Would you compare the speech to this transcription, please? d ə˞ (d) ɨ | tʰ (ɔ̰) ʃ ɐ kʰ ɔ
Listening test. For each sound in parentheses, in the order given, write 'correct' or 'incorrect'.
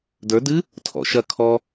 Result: correct, correct

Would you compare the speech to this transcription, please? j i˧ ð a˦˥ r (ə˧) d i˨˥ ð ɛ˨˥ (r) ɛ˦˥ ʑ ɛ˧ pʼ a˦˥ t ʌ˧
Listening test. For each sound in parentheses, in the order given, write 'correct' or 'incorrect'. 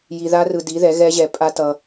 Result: incorrect: ɯ˧, incorrect: ɣ

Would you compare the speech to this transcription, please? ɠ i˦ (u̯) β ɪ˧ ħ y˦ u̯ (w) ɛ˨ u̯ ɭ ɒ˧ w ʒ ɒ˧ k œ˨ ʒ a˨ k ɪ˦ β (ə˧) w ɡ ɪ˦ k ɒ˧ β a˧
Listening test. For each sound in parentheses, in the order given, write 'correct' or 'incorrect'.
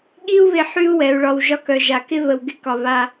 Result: correct, correct, correct

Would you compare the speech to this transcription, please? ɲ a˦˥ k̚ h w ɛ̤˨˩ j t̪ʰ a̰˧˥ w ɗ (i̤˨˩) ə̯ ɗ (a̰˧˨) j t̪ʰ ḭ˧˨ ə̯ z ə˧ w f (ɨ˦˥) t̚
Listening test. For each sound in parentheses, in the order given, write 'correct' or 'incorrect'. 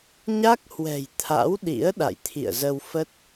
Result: incorrect: ḭ˧˥, correct, incorrect: ə˦˥

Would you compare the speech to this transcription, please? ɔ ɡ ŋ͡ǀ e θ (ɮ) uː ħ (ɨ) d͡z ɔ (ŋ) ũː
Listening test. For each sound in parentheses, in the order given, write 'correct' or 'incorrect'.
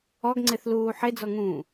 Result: incorrect: l, incorrect: e, correct

